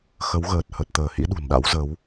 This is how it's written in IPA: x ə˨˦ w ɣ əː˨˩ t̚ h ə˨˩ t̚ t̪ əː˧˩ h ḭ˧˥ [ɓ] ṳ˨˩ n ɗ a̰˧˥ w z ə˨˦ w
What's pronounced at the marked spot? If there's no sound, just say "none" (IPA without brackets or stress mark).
ɗ